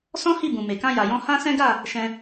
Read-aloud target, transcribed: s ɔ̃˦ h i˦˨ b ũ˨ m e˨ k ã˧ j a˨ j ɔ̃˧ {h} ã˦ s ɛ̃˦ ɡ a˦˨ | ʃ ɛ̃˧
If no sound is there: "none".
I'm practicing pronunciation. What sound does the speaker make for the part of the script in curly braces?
h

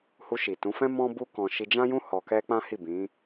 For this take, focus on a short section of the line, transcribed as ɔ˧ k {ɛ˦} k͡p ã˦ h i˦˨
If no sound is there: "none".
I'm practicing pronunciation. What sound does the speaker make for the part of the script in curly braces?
ɛ˦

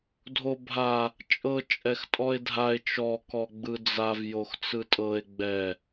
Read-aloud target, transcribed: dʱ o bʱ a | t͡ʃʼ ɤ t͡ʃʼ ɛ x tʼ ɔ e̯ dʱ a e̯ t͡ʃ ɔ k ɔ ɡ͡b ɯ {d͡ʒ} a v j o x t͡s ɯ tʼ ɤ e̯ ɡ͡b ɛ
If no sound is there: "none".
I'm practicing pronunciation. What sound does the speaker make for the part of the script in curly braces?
d͡z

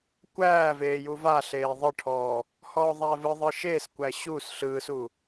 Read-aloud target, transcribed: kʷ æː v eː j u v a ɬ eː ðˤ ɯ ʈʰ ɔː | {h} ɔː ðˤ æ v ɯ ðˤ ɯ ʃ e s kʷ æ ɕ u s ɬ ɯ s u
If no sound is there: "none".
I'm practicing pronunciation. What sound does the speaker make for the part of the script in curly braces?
h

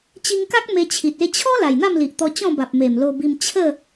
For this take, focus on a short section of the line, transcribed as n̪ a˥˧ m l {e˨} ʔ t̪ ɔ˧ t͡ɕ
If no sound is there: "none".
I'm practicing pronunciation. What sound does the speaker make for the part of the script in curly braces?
i˨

